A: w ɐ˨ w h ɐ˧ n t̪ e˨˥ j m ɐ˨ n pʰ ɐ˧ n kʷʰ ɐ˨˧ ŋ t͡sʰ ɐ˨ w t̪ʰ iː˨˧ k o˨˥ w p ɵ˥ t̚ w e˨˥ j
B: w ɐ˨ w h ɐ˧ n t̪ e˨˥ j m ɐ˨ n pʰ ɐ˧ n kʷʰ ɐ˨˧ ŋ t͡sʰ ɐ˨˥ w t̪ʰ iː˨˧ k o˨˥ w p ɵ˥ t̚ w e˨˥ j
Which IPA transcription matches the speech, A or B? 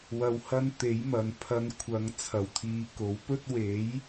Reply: A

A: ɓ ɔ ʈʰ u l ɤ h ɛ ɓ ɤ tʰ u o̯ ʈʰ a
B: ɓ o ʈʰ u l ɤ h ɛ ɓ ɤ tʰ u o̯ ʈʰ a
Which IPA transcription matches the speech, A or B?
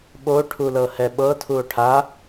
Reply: B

